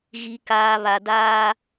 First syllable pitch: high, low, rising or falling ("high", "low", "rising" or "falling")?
low